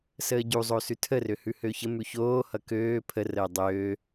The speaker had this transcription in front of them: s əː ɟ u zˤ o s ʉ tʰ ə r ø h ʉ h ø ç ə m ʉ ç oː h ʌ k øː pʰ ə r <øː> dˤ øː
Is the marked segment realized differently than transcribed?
yes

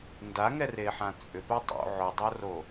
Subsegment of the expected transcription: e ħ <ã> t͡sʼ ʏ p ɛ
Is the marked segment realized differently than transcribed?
no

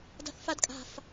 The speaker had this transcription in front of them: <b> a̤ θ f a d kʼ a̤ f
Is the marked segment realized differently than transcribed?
yes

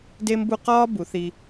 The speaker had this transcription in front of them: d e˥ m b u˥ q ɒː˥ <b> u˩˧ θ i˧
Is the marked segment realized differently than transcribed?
no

